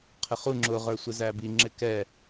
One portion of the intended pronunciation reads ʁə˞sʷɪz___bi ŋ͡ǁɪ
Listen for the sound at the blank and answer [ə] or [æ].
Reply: æ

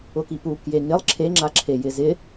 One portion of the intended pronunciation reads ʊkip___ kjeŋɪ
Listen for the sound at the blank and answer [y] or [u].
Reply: u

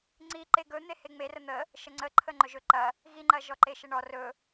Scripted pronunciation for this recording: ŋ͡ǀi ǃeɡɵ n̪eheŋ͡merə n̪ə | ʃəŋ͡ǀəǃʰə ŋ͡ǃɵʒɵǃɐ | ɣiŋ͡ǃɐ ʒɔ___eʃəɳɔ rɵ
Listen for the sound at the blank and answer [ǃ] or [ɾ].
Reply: ǃ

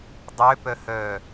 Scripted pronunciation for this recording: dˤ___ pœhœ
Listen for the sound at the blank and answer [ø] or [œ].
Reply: ø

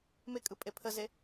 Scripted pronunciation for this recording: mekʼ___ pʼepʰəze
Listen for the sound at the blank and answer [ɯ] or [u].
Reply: ɯ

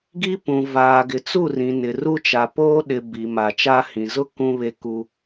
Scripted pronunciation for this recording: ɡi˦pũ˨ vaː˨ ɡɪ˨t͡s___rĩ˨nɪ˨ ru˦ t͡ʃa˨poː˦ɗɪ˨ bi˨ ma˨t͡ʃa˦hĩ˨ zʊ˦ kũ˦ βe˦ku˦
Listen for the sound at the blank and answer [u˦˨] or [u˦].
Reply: u˦˨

